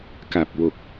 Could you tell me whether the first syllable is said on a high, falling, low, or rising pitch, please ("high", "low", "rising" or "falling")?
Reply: low